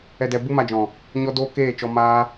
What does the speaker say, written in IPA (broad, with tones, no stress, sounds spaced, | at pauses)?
ɛ˧ d ɛ˧ b u˦ m a˧ d͡ʒ ɔ̃˨ | ɲ ɔ˦ d oː˦ k eː˦˨ t͡ʃ ɔ˧ m aː˦